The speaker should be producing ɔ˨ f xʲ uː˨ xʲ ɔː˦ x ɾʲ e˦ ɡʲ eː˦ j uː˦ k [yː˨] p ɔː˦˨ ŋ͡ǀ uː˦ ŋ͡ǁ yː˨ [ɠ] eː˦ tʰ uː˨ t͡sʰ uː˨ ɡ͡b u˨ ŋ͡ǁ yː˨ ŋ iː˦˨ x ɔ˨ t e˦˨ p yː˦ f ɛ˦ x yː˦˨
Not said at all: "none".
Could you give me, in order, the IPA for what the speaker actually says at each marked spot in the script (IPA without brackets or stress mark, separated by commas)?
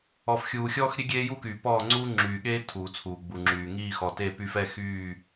yː˨, ɠ